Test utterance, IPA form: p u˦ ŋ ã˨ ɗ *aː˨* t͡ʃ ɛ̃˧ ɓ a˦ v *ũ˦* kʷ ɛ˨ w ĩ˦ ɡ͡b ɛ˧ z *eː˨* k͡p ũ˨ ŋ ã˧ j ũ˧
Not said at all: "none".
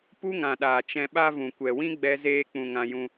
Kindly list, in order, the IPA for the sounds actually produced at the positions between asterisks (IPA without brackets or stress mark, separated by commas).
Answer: aː˨, ũ˨, eː˧